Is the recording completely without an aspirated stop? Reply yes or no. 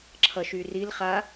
no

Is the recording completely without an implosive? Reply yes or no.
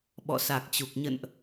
no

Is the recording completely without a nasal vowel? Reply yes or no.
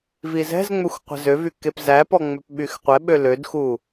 yes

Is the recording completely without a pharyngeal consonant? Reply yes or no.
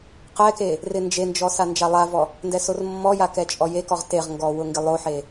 no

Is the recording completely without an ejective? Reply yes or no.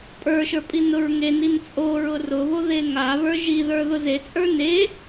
no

